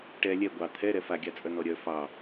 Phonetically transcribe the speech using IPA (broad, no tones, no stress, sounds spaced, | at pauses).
ʈ ɛ lʲ ɛ ɡʷ ɑ t̪ʰ ɛ ɾ ɛ f a ɡʲ a t͡sʼ œ n ɔ ɾʲ œ f ɑ